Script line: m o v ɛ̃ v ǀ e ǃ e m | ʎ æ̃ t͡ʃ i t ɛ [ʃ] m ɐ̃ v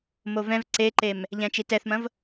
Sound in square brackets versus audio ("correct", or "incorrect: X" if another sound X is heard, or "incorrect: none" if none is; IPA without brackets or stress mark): incorrect: θ